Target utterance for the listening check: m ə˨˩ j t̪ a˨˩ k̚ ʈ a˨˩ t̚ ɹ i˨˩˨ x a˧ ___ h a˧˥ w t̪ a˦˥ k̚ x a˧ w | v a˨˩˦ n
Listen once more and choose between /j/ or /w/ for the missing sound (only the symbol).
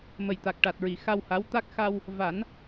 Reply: w